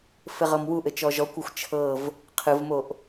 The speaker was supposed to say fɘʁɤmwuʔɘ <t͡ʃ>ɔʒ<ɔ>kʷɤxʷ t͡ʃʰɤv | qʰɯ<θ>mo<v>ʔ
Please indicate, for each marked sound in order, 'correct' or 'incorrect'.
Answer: correct, correct, incorrect: v, incorrect: none

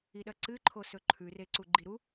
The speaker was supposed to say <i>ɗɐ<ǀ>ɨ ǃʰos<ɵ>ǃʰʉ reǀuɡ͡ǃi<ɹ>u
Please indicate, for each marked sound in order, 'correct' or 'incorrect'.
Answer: correct, correct, correct, incorrect: ɾ

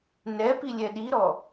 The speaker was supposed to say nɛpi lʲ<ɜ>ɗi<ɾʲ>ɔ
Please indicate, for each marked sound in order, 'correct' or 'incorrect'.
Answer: incorrect: ɛ, incorrect: ɾ

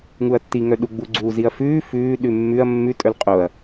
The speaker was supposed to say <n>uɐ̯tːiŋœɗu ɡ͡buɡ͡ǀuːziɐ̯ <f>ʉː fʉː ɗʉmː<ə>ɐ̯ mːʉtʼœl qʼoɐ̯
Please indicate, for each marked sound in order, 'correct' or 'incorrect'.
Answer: incorrect: ŋ, correct, incorrect: ʉ

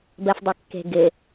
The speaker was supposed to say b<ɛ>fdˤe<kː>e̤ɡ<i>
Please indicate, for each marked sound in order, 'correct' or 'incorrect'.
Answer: incorrect: ɜ, correct, incorrect: ɪ

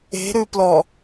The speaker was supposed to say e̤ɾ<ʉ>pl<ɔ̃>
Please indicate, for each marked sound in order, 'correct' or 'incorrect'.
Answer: correct, incorrect: ɔ

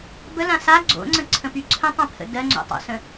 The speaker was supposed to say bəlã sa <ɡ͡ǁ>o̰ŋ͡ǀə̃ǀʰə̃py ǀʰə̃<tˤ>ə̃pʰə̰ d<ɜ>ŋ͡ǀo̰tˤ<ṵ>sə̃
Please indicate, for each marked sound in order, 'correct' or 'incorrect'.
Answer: incorrect: ɡ͡ǀ, correct, correct, incorrect: o̰

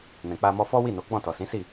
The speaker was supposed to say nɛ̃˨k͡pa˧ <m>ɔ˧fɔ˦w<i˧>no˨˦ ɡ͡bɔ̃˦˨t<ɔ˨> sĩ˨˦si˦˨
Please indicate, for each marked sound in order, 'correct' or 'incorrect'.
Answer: correct, incorrect: i˦˨, correct

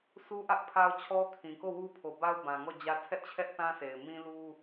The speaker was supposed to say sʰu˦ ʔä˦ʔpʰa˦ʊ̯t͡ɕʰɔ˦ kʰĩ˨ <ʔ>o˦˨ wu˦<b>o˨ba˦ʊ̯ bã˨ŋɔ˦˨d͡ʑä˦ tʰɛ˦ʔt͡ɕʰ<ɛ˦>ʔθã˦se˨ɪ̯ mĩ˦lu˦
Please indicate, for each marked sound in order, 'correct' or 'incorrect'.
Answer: incorrect: k, incorrect: pʰ, correct

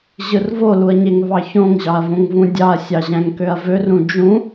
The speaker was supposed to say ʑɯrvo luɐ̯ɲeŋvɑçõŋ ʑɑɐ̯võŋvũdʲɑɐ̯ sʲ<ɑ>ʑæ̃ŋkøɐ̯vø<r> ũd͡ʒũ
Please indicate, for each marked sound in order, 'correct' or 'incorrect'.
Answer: correct, correct

